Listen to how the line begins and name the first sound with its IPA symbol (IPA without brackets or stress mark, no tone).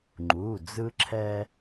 ŋ͡ǃ